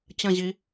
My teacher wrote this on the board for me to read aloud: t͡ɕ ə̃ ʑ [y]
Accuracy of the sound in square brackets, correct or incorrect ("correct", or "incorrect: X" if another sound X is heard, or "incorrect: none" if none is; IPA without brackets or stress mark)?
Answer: incorrect: i